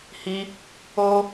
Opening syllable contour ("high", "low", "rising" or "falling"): high